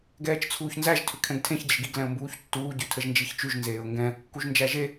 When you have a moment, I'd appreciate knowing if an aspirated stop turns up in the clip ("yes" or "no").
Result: yes